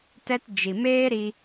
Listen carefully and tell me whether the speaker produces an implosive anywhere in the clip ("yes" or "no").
no